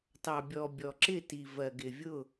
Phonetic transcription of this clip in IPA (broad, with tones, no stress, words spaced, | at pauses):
tɑ˨bʲɔ˨bʲɔ˨ ǁɪ˦˨ ti˨ vɜ˨ ɡɪ˨vʲʊ˦˨